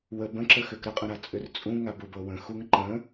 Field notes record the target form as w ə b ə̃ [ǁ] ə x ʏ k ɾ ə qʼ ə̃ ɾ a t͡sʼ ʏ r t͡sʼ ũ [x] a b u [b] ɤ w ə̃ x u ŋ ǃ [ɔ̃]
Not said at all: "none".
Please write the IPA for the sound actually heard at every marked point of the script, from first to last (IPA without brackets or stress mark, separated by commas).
ǁ, ŋ, b, ə̃